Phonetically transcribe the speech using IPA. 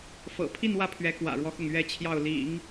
f ɤ̰˨˩ pʰ i˥˧ n w ä˥˩ pʰ ɥ ɛ˧˥ k w ä̰˨˩ ɻ w ɔ˦ x ʊ˥˩ ŋ ɥ ɛ˥ t͡ɕʰ j ɑ˥˩ ʊ̯ l ḭ˨˩˦ ŋ

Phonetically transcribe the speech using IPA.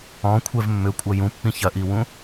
ɔ̃ kʷʰ ɛ v mː ʏ kʷʼ ɐ j ũ pː ĩ ç ɐ ʔ i w ũ

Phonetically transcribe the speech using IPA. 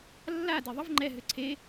lː a d e ðˤ ə v ŋ͡ǃ ɛ ɦ ʏ ǀʰ e

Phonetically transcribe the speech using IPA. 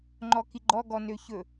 ŋ͡ǃ ɔ k i ɡ͡ǃ ɔ ɡ ɔ n ø ç ɵ

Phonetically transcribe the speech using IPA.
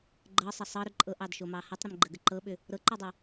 ɡ͡ǃ ɤ sˤ ə sˤ ɤ ɾ ʏ ǃʼ ɤ ʔ ɑ d ʃ o m ɑ h ɤ tˤ ɾ ə m ɡ͡ǃ ə ɡ ə ǃ ɤ ɓ ʏ | ɾ ɤ ǃ o dˤ u

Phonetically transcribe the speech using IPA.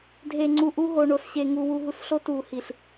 dʱ e˨ ŋ͡ǀ u˨ ʔ u˦ ɦ o˨ ɳ o˨ s ɕ e˨ ŋ u˨ w u˨ ɦ u˨ s ɬ o˦ t u˨ h i˨ ɬ

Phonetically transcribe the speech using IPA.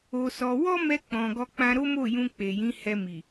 o˧ s ɔ˧ w ɔ˦ m ɛ˧ k͡p ɔ̃˨ ɡ ɔ˧ k͡p ã˧ ɾ o˦ m o˦˨ j ũ˧ k͡p e˨ j ĩ˨˦ h ɛ˧ m i˨

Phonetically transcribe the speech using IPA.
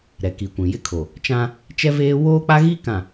ɾ ɛ˨ k i˨ kʷ ĩ˨ j ɪ˦ kʰ o˨ | t͡ʃ ã˦ | t͡ʃ ɛ˦ v eː˦ w oː˦ k͡p a˦ ɣ i˦ k ã˨

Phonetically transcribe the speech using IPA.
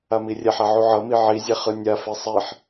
a m i rʲ ɛ ħ a ʕ u ʕ ʌ m i ʕ i zʲ ɛ χ ɯ nʲ a f e sˤ i ħ

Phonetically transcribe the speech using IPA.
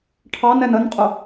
ʈʰ ɑ n ɛ n ə n qʼ ʊ

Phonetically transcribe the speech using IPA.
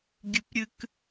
ɡʲ ɨ p ɾʲ ɨ k

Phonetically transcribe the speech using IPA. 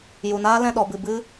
j u˨ n aː˦ l ɛ̃˦˨ ɗ ɔ˨ b ɨ˨ b ɨ˦

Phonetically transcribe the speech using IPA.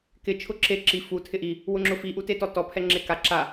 k ɪ t͡ʃʰ ʊ ǁ e ǁ i f u tʰ ɪ ʔ i | w ʊ ŋ͡ǁ ʊ f i ʔ u t e t ɔ t ɔ pʰ ɛ ŋ͡ǁ e k a ǁ a

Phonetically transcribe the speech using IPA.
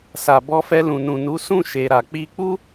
s a˨ b ɔ˧ f ɛ˧ l ũ˨ n ũ˨ n u˨˦ s ũ˦˨ ʃ e˨ ɾ a˨ k͡p i˧ k͡p u˦

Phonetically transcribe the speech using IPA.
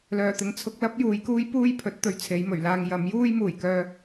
l œː˨˩ t̪ ɪ˨ ŋ t͡sʰ ʊ˧ k̚ l ɐ˥ p̚ j uː˨˧ j k uː˥ j p uː˥ j pʰ ɵ˨˥ t̚ t̪ ɵ˨ ɥ t͡sʰ e˨˧ j m ɵ˨˩ ɥ l aː˧ ŋ j ɐ˨˥ m j uː˥ j m uː˨˩ j k œː˧

